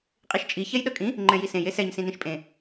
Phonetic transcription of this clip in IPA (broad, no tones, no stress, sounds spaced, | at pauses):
qʼ i ʃ t͡ʃʼ i ç ɛ j ɗ ʌ kʼ ĩ | ŋ͡ǃ ɛ̃ j i s ẽ j e s ɛ ɲ s ĩ n ĩ ʃ pʼ ẽ